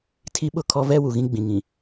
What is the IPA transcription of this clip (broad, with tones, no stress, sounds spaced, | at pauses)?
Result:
tʰ i˦ ɓ ʊ˦˨ kʰ ɔ˦ v ɛ˦ w u˨ ɣ ĩ˦ ɡ͡b ĩ˨ ŋ ĩ˨